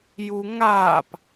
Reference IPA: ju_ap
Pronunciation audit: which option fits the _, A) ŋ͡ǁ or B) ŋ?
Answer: B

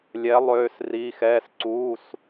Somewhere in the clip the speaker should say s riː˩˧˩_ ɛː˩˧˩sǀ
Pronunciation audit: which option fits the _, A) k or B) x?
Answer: B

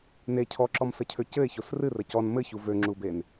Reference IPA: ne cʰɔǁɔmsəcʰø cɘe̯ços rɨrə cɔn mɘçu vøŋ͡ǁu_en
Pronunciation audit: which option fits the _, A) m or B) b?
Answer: B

